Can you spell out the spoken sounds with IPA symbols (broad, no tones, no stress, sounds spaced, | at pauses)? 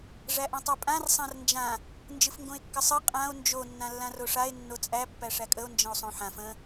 ʐ æ ʔ ã tˤ æ pʼ ã r sˤ ã r n d͡ʒ ã | n d͡ʒ ɨ f ŋ ɡ õ e̯ kː ə sˤ ɨ qʼ ã o̯ n d͡ʒ o nː ã lː ã r o ʂ a e̯ nː o t͡sʼ æ pː æ ʂ æ kʼ ə o̯ n d͡ʒ ə̃ o̯ sˤ õ ħ ã f ə̃